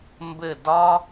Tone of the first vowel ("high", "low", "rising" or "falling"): falling